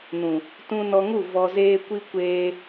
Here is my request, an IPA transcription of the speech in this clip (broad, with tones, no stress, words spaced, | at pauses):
nũ˨ | tũ˧nɔ˧ŋu˦˨ vɔ˧zeː˦kʷi˦ kʷeː˧